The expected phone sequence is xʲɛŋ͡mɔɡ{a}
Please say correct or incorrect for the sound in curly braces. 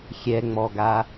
correct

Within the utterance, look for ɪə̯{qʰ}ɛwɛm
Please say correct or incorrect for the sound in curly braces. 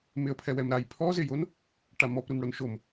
incorrect: pʰ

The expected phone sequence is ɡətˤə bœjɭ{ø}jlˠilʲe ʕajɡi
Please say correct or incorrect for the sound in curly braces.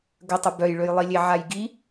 correct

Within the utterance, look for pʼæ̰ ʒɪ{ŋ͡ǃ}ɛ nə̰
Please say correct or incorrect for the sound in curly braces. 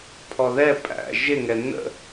incorrect: ŋ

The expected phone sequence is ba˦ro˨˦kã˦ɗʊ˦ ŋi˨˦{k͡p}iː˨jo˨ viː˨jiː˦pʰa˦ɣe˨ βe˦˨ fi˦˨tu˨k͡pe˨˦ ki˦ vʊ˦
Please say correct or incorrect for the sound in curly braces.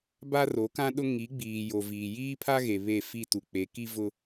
incorrect: ɡ͡b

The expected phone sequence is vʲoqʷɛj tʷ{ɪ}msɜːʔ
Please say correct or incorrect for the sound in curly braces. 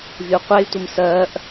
correct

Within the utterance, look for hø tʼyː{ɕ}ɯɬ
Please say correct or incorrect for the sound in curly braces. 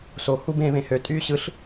correct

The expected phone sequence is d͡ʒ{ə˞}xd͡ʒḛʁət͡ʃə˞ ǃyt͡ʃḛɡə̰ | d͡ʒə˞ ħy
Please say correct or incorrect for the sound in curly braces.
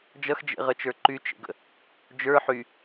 incorrect: ʌ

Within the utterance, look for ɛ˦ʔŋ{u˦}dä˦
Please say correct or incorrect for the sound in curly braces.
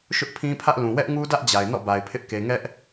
correct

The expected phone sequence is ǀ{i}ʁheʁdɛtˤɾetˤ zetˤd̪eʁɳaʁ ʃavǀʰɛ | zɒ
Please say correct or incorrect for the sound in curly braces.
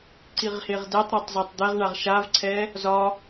correct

